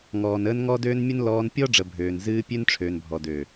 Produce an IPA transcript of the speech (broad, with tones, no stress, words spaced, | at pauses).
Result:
ŋɔː˨nəː˧n ŋɔ˦døː˦nmʲə˦n lɔː˧npʲɔ˦ ɖ͡ʐə˨ bʱøː˨nzɨː˧ pʲø˦nʈ͡ʂʰøː˨nbʱɔ˨ dø˨